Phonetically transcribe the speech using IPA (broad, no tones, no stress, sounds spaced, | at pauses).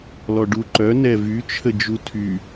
l ɔ ɖ u ǃ œ n ɛ v y t͡ʃʰ ə d͡ʒ u tʰ y